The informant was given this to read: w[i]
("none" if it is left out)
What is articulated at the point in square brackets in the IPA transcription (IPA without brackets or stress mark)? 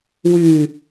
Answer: y